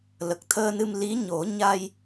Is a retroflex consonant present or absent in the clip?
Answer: absent